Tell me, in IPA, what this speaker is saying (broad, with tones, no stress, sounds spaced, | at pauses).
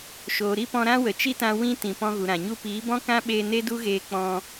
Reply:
ʃ oː˨ ɾ i˦ p ɔ̃˧ ɾ ã˦ w ə˨ t͡ʃ i˦ t ã˧ w ĩ˧ t ĩ˨ p ɔ̃˧ ɣ u˨ ɾ ã˨ ɲ u˦ p iː˨˦ b ɔ̃˦ k ã˦ ɓ eː˧ n e˦ d u˦ ɣ eː˧ k͡p ɔ̃˧